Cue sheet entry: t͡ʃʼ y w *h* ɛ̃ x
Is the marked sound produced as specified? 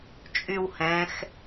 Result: yes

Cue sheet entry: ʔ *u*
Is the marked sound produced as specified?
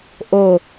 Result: no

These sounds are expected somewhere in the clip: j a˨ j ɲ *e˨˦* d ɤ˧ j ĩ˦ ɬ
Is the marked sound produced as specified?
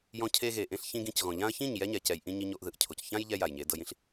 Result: yes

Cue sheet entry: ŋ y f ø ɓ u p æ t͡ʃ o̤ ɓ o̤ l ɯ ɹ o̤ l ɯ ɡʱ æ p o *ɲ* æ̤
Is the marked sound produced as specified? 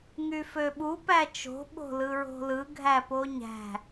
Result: yes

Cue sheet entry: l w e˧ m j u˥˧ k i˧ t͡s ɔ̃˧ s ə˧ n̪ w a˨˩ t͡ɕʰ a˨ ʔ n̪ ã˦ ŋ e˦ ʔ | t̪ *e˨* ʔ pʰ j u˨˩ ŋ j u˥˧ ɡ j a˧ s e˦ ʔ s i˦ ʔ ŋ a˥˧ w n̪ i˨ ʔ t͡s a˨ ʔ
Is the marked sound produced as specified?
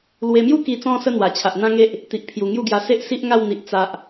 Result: no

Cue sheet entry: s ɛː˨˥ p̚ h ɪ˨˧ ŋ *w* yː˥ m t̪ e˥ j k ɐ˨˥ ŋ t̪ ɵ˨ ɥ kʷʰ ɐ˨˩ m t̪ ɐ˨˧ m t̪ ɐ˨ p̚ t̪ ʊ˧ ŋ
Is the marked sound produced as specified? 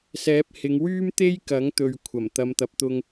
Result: yes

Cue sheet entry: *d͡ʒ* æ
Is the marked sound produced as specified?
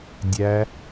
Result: no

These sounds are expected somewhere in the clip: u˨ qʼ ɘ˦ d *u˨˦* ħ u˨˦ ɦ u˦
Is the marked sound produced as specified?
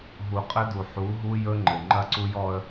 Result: no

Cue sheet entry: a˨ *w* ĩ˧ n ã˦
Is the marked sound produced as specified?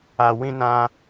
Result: yes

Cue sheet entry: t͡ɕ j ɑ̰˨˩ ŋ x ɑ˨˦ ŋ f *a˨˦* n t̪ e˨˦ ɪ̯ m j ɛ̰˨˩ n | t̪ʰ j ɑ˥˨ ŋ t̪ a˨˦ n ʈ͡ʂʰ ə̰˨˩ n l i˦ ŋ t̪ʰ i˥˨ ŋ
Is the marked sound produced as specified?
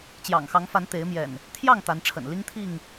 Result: yes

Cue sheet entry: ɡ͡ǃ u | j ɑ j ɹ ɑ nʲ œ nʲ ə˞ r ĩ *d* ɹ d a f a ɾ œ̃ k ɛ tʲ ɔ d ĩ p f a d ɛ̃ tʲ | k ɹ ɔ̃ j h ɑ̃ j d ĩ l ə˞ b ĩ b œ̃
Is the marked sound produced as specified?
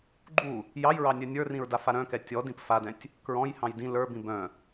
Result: no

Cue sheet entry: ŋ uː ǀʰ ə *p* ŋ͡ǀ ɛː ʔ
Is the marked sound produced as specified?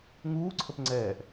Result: yes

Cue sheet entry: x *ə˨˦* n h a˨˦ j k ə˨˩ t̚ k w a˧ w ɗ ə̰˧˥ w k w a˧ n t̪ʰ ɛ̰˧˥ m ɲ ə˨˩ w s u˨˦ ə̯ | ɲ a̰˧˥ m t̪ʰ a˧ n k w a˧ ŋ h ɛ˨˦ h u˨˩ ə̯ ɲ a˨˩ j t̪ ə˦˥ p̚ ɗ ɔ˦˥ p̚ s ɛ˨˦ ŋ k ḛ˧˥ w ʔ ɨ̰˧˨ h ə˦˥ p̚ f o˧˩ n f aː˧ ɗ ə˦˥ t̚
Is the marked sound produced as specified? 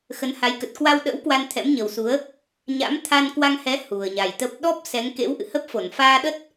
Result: yes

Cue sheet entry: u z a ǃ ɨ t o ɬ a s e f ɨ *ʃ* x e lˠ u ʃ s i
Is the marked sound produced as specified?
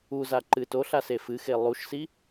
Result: no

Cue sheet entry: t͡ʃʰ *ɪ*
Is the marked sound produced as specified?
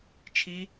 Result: no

